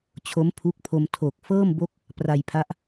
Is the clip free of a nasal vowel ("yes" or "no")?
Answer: yes